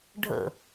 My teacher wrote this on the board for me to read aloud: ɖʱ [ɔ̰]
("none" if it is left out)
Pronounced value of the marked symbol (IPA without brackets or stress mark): ə̰